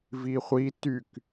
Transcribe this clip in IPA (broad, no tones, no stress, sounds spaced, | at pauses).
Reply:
v i χʷ i t y k